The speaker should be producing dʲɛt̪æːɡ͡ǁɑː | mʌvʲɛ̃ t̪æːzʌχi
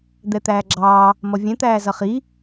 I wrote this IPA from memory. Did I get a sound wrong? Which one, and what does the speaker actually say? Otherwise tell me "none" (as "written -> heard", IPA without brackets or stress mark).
dʲ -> d̪